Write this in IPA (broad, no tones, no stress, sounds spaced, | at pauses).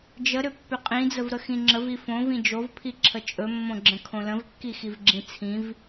d͡ʒ ə ɾ ʏ pː ʏ qʼ ĩ d͡z ə v ɾ ə x ĩ ŋ͡ǁ ə v i f õ v ĩ d͡ʒ o v pʰ i ǁʰ ə t͡ʃʼ ɵ mː õ ɡ͡ǁ ə̃ kʰ õ l ə̃ v kː i x i v ɡ͡ǁ ĩ t͡sʰ ĩ v